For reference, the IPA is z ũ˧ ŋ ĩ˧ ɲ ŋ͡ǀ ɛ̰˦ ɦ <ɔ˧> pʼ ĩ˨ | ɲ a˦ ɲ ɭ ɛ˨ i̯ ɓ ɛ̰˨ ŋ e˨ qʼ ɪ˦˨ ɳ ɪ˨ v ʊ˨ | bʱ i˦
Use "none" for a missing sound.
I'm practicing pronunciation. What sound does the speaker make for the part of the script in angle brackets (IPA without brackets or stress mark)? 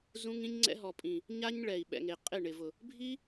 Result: ɔ˨